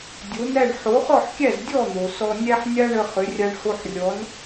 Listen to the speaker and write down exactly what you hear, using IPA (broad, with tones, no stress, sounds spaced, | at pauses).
dʲ o˩˥ n æ˥˩ ɳ ħ o˩˥ χ ɔ˥˩ ħ kʲ æ˥˩ z dʲ ɔ˥˩ n̪ o˩ s ɔ˧ nʲ æ˥ ħ nʲ a˥ ɳ ə˧ χ ʏ˩˥ rʲ a˧ ɳ h o˧ ħ rʲ ɔ˩˥ n